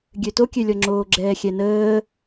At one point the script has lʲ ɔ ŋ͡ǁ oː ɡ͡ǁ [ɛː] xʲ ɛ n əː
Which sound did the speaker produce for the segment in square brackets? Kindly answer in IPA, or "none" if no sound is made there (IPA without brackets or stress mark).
ɛː